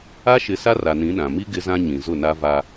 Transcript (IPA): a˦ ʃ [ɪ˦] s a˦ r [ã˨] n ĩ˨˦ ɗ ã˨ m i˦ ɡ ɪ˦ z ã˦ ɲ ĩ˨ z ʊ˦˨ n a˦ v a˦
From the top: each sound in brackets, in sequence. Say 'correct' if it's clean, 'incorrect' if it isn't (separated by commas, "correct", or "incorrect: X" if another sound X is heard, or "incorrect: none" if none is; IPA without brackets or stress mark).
incorrect: ɪ˨˦, incorrect: a˨